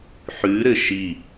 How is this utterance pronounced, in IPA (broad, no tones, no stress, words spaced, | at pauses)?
ħʉɾɘ ʃi